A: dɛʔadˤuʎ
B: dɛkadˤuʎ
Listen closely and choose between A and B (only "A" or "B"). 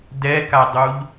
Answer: B